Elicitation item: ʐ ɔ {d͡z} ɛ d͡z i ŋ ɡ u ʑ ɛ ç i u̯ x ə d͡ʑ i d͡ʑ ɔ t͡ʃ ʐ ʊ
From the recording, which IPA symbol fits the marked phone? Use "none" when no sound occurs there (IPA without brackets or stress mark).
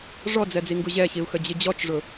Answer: d͡z